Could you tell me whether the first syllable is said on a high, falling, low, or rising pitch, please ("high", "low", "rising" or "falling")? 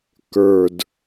low